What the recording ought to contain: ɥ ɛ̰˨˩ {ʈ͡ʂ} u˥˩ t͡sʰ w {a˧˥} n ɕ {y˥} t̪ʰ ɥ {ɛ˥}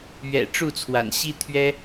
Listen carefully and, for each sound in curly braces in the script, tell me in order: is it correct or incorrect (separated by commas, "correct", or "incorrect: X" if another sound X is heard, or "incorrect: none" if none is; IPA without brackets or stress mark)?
correct, incorrect: a̰˨˩, incorrect: i˥, correct